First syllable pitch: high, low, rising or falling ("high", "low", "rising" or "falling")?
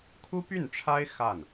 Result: high